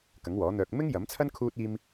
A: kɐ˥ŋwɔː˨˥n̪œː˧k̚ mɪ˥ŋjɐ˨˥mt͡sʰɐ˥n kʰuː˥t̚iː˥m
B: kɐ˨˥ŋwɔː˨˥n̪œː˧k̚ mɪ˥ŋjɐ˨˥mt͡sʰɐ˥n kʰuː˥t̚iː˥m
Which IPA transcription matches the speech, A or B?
B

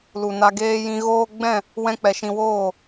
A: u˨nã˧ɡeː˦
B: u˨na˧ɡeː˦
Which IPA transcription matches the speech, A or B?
B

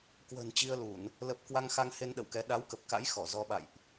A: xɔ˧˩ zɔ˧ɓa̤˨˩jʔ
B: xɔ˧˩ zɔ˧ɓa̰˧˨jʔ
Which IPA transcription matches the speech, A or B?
B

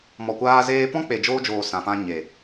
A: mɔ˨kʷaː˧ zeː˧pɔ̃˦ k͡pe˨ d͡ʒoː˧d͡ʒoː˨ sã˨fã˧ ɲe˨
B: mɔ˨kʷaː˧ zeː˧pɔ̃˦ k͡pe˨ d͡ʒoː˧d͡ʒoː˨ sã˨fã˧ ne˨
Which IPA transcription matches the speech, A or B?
A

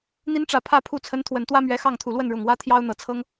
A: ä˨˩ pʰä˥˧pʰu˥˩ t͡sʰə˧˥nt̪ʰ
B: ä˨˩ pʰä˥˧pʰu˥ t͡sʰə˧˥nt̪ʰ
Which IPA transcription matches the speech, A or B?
A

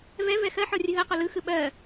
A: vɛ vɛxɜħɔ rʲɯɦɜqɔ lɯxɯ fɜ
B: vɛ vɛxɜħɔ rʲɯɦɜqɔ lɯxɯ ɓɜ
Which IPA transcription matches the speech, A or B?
B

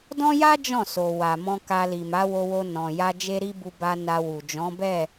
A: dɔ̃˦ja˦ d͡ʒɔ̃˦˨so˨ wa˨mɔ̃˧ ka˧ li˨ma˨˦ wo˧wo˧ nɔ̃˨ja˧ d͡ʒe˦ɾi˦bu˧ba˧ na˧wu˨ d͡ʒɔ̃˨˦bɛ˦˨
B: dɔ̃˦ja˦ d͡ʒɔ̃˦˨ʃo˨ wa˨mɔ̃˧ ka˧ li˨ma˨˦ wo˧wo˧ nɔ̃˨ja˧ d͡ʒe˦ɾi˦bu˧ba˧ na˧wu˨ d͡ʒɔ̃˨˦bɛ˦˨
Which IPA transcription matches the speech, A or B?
A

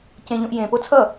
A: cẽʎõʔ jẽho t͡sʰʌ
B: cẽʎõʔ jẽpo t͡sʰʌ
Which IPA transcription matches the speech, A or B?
B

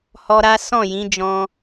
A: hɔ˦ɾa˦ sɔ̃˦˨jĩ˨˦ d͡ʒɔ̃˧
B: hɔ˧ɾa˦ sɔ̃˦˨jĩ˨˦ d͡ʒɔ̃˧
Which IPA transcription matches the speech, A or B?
B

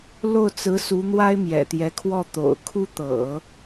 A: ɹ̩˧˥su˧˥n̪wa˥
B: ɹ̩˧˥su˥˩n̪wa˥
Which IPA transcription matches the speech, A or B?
A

